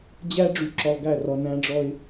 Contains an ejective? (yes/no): no